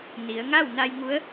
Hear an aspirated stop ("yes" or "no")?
no